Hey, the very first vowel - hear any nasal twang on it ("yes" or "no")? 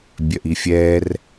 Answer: no